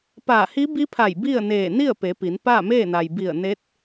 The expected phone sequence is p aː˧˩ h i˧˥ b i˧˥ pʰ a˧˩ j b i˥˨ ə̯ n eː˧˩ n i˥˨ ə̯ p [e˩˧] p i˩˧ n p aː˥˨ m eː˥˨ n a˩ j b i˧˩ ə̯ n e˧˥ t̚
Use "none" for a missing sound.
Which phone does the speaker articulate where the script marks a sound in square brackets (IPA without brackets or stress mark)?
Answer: e˩˧